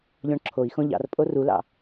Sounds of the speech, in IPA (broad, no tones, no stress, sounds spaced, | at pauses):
ʎ ɔ̃ ɳ ǁʰ o i̯ x õ ʎ ɑ̰ r pʼ o r u l ɑ̰